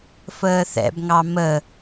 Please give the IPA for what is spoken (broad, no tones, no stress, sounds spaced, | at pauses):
f əː θ ɛ̰ b ŋ ɑ m ə